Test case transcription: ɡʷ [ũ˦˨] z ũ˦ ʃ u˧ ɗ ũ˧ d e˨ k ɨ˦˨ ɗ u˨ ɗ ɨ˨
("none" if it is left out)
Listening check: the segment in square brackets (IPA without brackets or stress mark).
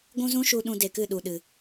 ũ˦